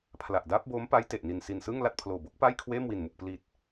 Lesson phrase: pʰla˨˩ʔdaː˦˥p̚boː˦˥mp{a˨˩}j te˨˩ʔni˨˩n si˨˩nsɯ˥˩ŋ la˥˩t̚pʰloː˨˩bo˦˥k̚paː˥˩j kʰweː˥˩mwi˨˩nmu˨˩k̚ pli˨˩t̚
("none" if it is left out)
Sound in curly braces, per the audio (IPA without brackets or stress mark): a˦˥